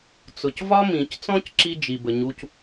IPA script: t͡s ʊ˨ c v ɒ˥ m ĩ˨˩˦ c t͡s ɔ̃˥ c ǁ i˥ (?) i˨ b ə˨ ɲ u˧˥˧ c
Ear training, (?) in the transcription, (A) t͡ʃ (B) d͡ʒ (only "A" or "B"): B